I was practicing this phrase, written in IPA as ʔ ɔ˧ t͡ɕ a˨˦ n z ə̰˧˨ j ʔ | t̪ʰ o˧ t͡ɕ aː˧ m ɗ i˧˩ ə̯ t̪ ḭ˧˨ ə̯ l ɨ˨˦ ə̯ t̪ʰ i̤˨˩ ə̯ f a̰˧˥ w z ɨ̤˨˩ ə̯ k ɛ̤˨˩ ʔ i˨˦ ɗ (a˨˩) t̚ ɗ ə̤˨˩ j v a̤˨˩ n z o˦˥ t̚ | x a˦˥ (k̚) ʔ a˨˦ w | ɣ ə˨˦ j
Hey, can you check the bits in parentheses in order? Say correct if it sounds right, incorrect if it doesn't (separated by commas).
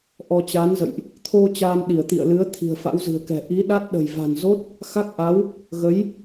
incorrect, correct